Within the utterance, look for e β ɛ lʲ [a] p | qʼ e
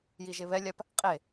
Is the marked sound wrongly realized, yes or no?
no